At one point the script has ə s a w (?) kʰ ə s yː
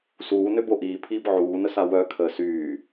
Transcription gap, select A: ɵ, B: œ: B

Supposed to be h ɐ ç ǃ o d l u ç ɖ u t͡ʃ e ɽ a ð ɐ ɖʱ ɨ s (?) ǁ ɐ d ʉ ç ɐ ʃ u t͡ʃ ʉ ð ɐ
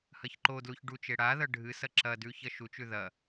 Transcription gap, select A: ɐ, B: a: A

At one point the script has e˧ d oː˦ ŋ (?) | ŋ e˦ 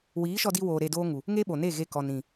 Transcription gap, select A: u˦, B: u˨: B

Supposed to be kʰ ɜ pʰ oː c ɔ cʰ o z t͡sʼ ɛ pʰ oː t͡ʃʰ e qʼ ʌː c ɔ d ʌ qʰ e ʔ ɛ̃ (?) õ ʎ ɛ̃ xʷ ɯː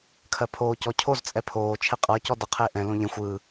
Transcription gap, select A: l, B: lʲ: A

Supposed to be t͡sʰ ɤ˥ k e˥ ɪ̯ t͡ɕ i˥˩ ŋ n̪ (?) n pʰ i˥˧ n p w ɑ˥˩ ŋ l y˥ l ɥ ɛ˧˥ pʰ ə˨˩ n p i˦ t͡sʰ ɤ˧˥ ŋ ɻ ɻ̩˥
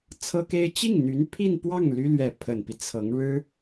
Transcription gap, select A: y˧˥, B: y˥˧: A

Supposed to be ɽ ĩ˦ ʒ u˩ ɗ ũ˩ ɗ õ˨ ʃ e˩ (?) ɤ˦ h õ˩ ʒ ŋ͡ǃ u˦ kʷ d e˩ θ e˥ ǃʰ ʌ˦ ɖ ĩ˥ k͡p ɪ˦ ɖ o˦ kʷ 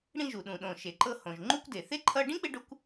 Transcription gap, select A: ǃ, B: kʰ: A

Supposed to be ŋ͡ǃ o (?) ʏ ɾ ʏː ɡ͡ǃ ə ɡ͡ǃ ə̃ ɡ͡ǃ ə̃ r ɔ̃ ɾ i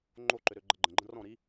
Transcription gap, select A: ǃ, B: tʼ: A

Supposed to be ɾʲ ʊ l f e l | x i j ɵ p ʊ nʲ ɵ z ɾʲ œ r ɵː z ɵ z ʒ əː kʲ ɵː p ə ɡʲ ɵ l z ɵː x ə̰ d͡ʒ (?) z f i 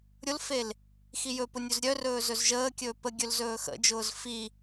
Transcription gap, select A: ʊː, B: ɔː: A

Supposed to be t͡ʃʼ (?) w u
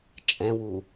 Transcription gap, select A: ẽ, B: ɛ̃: B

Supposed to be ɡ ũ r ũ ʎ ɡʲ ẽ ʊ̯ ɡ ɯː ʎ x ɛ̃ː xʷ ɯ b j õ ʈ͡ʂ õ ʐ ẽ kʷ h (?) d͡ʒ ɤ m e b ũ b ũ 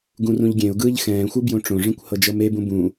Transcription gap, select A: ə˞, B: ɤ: B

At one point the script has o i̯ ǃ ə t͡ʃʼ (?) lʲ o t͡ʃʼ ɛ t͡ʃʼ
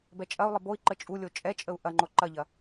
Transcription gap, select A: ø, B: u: B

